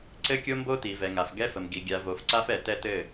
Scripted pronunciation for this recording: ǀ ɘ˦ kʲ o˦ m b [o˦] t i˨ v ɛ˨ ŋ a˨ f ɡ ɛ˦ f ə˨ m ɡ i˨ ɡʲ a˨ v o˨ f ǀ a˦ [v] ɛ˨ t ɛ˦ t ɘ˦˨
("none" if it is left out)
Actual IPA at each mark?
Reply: o˦, f

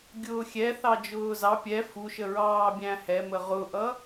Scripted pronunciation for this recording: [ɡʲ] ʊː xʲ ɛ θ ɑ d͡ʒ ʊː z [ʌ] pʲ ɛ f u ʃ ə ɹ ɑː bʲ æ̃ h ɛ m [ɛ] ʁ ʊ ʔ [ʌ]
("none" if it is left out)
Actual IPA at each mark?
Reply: ɡʲ, ɑ, ə, ʌ

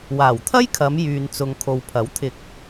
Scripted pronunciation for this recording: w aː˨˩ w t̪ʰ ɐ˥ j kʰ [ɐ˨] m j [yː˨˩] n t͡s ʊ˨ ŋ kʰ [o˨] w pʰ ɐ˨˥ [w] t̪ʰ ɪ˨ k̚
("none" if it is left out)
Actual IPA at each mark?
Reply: ɐ˨˧, yː˨, o˨, w

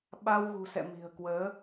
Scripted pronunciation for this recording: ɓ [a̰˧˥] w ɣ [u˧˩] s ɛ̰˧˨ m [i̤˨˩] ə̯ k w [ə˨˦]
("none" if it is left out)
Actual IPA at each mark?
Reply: a˧, ṳ˨˩, i̤˨˩, əː˨˦

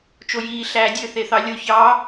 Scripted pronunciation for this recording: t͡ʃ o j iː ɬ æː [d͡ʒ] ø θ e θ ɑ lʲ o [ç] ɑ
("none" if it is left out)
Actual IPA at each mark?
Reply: dʲ, ç

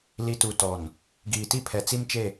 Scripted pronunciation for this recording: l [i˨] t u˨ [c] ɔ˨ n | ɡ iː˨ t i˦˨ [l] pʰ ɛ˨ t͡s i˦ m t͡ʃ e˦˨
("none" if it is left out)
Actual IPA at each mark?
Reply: i˨, t, none

